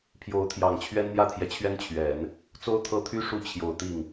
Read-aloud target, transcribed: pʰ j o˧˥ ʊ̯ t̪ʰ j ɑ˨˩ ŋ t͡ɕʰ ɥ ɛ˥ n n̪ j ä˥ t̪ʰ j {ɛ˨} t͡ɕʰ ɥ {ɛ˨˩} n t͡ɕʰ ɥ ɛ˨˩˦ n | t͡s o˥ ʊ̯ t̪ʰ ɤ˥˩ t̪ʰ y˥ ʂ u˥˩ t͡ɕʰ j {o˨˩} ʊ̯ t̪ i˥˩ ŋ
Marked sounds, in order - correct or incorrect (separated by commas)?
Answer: correct, incorrect, correct